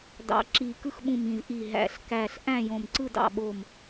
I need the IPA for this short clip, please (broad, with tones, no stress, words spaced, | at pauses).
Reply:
dɑ̰˨˩ǁi˨˩ kɯ˦˨xɓũ˨˩mĩ˨˩z ʔi˨˩ ɦæ̰˨˩ɬkæ˨˩ɬʔæ̃˦˨ jõ˨˩mǀɯ˦˨ dɑ̰˨˩ɓo˨˩m